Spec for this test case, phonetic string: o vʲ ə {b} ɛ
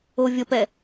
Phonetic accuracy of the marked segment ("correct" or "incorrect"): incorrect